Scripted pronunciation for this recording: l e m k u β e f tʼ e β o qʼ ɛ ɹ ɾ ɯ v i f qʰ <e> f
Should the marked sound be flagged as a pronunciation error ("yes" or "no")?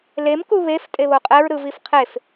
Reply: no